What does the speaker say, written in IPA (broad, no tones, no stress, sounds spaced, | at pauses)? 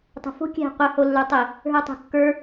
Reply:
tˤ ṳ f o̤ kʲ ɛ̤ qʷ ɘ h o lː ə˞ tˤ ɘ | ɦ ə˞ tˤ ṳ kː ə˞